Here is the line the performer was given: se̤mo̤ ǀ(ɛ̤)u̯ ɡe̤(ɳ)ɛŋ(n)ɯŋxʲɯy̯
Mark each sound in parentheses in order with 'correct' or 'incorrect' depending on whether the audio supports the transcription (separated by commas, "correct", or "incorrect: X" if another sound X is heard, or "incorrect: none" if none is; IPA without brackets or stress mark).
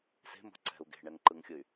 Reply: correct, correct, incorrect: ǃ